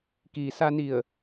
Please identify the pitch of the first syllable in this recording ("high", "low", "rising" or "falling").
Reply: low